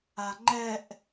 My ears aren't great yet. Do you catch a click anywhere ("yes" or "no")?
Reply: yes